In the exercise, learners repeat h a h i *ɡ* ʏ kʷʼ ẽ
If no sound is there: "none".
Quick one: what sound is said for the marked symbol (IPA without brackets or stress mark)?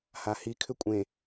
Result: kʰ